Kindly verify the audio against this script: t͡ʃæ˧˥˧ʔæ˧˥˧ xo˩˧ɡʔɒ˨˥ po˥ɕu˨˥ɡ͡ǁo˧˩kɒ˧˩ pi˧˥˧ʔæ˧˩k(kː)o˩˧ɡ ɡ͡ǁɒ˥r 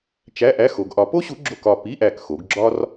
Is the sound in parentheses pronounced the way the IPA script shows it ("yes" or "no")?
no